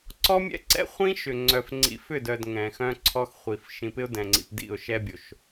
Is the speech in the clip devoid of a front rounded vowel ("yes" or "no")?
no